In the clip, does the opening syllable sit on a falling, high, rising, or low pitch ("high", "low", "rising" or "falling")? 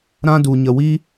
high